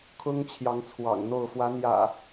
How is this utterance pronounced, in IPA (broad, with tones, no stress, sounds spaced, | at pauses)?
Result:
kʰ ʊ˦ ŋ t͡ɕʰ j ɑ˨˦ ŋ t͡sʰ w ɑ̰˨˩ ŋ n̪ o˥˨ ʊ̯ f w ä˨˦ n̪ j ä̰˨˩